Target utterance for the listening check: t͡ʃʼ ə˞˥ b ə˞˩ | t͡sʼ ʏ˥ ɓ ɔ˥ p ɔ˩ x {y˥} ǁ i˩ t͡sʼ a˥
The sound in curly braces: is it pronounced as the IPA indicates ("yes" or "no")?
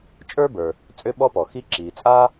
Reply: no